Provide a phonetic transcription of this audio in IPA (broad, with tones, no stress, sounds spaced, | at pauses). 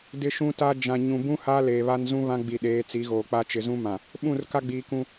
d ɪ˦ ʃ ũ˦ t a˦ d͡ʒ ã˨ ɲ ũ˨ b ũ˦ h a˦ l eː˨ β a˦ n z ũ˦ β ã˦ ɡ͡b i˨ ɗ eː˨˦ t͡s i˨˦ ɣ oː˨ k͡p a˦ t͡ʃ ɪ˨ z ũ˦ m ã˨ | ɓ ũ˦˨ r k a˦ ɡ͡b iː˨ k ũ˦